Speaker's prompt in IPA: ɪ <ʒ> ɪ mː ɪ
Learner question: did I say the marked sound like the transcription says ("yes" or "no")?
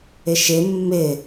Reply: no